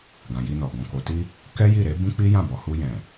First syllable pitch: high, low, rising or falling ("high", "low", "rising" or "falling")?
low